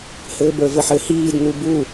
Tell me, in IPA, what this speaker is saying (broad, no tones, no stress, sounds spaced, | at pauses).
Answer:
h ɘː b ə˞ v ɘ ħ ɘ h iː d n̪ u b u